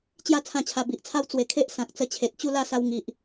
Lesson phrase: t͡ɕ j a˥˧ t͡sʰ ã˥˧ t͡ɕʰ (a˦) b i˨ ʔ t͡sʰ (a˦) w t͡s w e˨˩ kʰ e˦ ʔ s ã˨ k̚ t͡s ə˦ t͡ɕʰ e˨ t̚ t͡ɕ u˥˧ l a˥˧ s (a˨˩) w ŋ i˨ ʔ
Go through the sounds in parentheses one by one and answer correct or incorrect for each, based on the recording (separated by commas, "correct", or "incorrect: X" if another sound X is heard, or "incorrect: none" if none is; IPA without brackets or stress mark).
incorrect: a˧, correct, incorrect: a˧